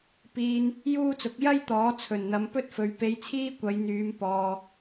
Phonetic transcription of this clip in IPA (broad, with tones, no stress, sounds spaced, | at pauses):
p iː˧ n | j uː˥ t͡s ʊ˨˥ k̚ j ɐ˥ j t̪ ɔː˨˥ t͡sʰ ɵ˨˩ n n̪ ɐ˨˧ m p ɵ˥ t̚ f ɵ˨˧ ɥ p e˧ j t͡sʰ iː˥ kʷ ɐ˨˧ j n̪ yː˨˧ m p ɔː˧